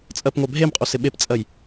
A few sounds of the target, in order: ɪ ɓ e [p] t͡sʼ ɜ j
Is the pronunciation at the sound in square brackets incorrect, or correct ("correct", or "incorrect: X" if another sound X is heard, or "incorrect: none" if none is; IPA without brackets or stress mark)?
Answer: correct